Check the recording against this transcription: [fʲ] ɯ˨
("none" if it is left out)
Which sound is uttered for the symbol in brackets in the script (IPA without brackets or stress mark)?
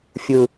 fʲ